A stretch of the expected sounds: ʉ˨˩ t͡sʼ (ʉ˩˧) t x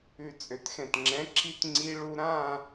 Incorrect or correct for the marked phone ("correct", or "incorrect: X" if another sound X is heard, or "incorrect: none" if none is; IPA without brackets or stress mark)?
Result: incorrect: ø˩˧